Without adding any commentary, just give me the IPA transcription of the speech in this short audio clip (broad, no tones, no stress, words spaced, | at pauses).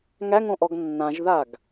ŋæŋõʔɔɡ nːãʒðaɡ